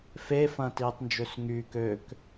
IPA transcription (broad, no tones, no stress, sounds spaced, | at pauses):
f e f ɐ̃ː t iː tˤ n d͡ʒ ø s ŋ yː k ø k